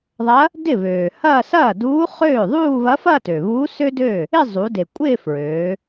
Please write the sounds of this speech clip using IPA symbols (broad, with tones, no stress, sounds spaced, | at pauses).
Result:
ðˤ ɐ˧˥ | d ɪ˥˩ β øː˩ h ɐː˥˧ s ɐː˥˩ d uː˧˥ χ øː˥˩ ðˤ uː˥˧ β ɐ˧˥ f ɐ˥˧ t ø˩ β uː˧˥ s ø˥ d ø˥˩ | ɪ˥˧ zˤ u˩˧ d e˩ kʷʼ ɪː˥˧ f ɹ øː˩˧